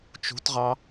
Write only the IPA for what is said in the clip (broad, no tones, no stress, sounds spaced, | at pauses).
t͡ʃ ṳ t ʁ ɑ